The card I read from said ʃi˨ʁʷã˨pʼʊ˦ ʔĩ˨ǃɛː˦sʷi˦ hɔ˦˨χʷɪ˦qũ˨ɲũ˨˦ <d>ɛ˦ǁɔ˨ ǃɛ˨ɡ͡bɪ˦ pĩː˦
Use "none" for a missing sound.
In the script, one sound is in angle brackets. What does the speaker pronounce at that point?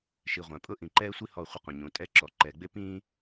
tʼ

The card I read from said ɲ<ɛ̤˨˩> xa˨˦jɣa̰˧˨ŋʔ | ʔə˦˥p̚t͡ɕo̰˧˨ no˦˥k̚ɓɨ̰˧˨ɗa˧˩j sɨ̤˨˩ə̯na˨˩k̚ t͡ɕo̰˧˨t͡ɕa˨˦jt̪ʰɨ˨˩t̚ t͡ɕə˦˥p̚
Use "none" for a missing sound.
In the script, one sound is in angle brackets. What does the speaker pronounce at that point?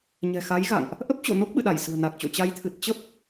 ɛ̤˨˩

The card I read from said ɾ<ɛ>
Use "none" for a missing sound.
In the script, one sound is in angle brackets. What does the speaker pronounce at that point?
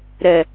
ɛ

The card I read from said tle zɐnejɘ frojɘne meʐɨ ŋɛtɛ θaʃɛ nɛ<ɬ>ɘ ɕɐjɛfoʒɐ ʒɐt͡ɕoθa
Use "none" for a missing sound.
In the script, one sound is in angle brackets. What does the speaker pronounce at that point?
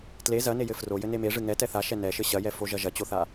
ʃ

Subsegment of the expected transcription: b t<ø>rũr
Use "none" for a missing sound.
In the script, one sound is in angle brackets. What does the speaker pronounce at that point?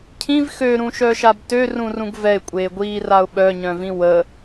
ø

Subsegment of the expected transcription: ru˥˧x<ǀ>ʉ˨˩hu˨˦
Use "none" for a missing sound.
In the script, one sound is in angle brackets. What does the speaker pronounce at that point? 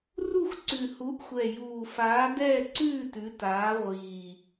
ǀ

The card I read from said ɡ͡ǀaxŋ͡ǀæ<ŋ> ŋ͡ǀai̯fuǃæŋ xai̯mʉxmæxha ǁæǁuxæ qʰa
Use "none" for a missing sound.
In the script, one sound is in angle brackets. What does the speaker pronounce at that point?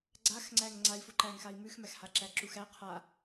ŋ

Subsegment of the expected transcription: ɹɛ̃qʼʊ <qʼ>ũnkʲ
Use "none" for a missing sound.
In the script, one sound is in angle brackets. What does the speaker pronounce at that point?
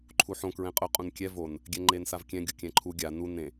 qʼ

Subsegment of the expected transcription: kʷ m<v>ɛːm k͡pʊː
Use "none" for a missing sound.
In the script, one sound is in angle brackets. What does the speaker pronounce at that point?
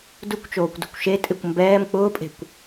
b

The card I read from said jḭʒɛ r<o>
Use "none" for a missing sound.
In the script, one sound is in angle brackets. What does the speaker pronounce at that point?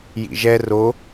o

